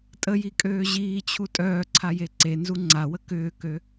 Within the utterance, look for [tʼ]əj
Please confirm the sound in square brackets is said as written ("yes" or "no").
yes